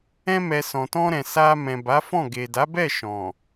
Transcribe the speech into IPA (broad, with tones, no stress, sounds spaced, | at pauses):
ɛ̃˧ m ɛ˨ s ɔ̃˨ t ɔ̃˧ ɾ ɛ̃˨ s a˧ m ɛ̃˨ b a˨˦ f ɔ̃˦˨ ɡ e˨ d a˨˦ b ɛ˦˨ ʃ ɔ̃˨